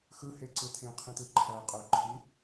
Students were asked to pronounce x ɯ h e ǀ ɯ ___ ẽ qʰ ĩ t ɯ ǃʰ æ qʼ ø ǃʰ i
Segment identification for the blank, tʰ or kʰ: tʰ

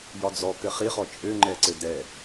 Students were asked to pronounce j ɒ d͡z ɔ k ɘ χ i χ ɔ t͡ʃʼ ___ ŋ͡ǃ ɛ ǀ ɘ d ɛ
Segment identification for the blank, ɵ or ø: ø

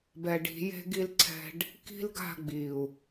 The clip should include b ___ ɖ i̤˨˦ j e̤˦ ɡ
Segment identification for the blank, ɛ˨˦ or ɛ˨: ɛ˨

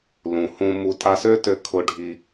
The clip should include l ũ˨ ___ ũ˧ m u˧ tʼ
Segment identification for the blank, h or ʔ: h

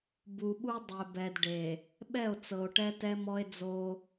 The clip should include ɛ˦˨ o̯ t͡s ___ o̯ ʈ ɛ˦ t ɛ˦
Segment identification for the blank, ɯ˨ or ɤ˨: ɤ˨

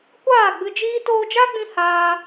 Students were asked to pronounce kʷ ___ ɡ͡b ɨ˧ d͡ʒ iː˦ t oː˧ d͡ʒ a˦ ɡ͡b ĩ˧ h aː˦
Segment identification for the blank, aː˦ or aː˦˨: aː˦˨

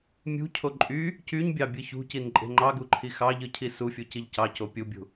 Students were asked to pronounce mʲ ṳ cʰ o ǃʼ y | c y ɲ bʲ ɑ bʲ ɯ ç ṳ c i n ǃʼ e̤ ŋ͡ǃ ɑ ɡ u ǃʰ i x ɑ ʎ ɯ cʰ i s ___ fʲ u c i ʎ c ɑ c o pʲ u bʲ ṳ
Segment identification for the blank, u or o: u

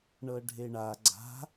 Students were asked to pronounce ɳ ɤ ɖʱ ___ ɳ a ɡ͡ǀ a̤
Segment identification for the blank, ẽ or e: e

